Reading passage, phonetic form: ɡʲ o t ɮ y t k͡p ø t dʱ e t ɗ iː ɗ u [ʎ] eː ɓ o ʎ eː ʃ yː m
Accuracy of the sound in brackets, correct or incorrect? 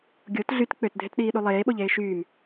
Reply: incorrect